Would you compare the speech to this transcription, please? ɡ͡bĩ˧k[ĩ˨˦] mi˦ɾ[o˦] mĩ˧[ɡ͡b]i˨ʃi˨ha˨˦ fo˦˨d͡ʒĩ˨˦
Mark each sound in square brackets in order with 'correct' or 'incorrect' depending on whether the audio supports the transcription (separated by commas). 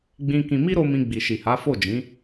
incorrect, incorrect, correct